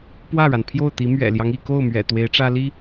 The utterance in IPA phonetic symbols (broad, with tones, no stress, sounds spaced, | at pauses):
p w ä˥˩ ɻ a˩ n pʰ j o˥˩ ʊ̯ t̪ i˧˥ m ɥ ɛ̰˨˩ l j ɑ˦ ŋ i˥˧ k o˥˩ ʊ̯ m ɥ ɛ̰˨˩ t̪ w e˧˥ ɪ̯ ʈ͡ʂ ä˥ l i˥